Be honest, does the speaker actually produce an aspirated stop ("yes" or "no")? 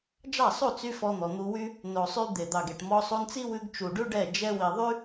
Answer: no